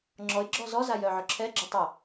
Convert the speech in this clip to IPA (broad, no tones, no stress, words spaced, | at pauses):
ŋ͡ǁɔɪ̯ ɡ͡ǁɔzɔza jœʕœǁʰɛɡ͡ǁœ tˤə